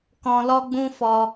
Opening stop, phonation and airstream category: plain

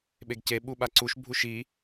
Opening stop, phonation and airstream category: implosive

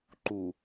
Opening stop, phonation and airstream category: click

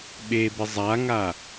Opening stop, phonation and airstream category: implosive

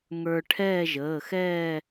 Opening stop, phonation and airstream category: aspirated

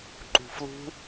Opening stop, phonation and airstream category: click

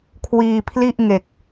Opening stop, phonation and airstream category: aspirated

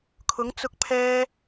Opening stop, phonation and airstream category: aspirated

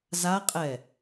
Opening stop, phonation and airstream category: ejective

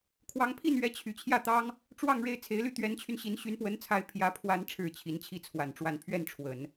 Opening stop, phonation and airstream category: aspirated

